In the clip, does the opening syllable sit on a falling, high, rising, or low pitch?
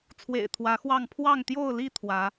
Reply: low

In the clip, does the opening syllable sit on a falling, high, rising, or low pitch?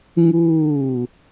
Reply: falling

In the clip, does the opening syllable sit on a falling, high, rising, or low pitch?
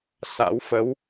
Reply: rising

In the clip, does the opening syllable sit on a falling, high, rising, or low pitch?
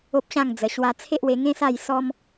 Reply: high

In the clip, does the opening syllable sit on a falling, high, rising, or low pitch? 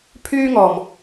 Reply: high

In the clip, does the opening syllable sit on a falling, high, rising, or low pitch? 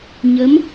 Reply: rising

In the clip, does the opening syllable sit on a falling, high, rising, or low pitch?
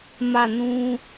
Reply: falling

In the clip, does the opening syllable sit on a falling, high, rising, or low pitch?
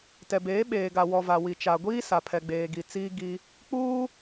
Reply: low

